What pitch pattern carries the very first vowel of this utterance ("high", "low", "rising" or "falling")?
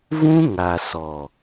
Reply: high